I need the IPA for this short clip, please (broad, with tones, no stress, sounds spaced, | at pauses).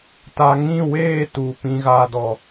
t a˨ ŋ ĩ˦˨ w eː˦˨ t u˨ p ĩ˧ ɣ aː˧ d ɔ˨